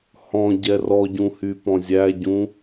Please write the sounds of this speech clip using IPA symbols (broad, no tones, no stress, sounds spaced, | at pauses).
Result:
h ɔ̃ ɟ ɛ r ɔ ɟ ũ h y p ɔ̃ zʲ æ ɟ ũ